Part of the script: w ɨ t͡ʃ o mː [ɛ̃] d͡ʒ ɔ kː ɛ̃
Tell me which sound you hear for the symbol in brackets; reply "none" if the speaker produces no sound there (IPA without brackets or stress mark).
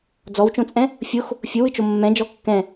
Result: ɛ̃